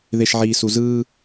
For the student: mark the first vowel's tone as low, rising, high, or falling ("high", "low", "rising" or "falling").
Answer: low